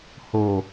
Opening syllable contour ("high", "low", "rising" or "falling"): low